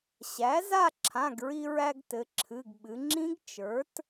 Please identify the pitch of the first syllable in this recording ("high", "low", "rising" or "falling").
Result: rising